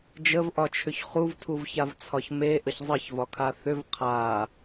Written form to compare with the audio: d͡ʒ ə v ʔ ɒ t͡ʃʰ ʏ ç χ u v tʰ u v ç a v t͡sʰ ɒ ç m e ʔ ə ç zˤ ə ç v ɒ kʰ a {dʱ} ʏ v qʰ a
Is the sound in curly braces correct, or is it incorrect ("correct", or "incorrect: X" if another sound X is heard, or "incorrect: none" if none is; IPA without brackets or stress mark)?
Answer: incorrect: θ